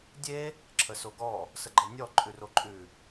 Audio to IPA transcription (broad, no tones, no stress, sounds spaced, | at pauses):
dʲ e | ǁʰ ə s o ɡ ɔ | s ə ɡ͡ǃ ɤ nʲ ɔ ǃʼ ʉ r o ǃʼ ʉ